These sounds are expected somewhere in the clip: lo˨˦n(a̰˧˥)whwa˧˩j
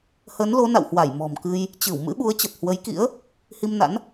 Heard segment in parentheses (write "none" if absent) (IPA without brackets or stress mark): a̰˧˨